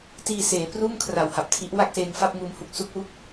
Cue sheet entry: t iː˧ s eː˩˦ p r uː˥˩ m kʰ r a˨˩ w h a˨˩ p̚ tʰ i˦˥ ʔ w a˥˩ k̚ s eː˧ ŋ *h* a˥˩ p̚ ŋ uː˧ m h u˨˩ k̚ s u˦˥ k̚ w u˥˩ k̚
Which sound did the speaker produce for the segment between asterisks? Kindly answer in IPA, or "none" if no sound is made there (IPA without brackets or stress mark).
f